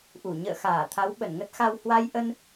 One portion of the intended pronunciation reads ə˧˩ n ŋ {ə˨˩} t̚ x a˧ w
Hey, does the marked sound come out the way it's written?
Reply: no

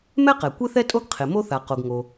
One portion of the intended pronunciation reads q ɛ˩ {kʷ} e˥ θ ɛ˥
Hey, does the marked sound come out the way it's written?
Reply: yes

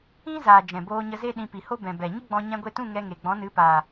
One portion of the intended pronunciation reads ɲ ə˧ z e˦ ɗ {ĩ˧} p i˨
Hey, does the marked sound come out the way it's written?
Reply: yes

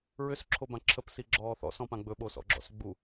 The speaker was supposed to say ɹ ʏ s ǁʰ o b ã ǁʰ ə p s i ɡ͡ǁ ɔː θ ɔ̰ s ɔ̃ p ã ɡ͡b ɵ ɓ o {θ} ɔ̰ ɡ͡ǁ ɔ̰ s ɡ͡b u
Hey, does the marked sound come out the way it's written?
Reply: no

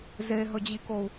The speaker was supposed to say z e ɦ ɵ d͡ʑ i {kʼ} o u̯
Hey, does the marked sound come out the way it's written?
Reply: no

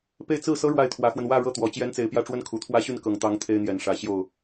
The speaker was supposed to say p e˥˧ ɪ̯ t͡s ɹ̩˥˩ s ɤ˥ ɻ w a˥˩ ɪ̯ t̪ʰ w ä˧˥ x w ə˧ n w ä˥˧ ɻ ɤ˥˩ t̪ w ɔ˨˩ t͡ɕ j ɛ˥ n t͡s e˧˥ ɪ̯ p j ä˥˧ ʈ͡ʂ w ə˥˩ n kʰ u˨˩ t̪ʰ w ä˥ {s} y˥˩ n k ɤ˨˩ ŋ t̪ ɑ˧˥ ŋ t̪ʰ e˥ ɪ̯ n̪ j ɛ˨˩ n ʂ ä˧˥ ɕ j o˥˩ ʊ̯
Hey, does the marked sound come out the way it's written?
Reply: no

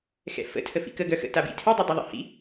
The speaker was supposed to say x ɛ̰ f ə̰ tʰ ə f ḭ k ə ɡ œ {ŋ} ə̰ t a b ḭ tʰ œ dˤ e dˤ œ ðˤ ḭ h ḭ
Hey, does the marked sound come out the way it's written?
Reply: no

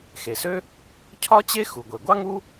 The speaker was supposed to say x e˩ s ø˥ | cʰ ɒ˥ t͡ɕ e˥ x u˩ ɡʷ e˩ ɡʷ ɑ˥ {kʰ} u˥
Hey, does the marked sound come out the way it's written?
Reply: no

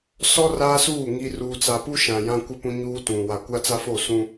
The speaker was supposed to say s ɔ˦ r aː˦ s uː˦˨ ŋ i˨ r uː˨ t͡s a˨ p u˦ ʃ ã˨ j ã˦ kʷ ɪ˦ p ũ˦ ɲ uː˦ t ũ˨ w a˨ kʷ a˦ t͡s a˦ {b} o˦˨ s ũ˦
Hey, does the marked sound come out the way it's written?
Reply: no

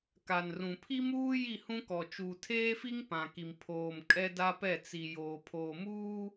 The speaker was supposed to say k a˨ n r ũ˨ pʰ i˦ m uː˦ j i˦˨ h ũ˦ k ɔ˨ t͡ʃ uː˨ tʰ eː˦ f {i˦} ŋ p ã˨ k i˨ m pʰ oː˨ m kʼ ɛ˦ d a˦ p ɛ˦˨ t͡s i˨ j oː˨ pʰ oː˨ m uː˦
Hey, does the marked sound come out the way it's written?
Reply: yes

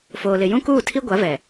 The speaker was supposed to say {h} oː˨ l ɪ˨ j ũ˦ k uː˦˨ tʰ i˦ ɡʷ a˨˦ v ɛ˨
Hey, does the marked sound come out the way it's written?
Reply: no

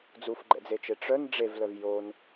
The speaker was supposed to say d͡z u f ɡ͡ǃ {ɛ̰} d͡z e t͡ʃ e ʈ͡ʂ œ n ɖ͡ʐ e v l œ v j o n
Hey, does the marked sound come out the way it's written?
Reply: yes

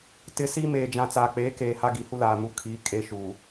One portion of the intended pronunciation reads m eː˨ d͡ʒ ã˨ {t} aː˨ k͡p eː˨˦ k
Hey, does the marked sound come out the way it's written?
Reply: no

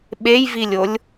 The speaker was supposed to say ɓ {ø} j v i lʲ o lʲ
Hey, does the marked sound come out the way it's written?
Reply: no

